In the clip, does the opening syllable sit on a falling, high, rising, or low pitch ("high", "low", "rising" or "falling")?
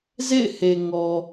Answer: falling